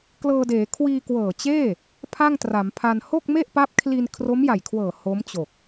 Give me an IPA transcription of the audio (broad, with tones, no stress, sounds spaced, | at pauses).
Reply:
k l ɤː˧ d eː˩˦ kʰ w iː˧ k w ɤː˨˩ t͡ɕ eː˥˩ | pʰ a˥˩ ŋ t r a˩˦ m pʰ a˧ n h o˥˩ k̚ m e˥˩ ʔ p a˦˥ p̚ kʰ l i˧ n kʰ r o˦˥ m j a˨˩ j kʰ w ɤː˨˩ h o˦˥ m t͡ɕ o˨˩ k̚